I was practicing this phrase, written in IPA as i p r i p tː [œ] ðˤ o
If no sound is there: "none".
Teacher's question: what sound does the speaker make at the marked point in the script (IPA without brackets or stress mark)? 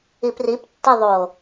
ɛ